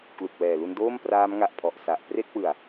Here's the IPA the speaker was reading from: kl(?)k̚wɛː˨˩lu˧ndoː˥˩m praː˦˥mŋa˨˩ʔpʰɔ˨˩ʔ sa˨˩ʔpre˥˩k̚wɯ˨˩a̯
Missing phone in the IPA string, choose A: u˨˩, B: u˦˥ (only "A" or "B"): A